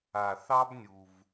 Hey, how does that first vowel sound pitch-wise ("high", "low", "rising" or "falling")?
low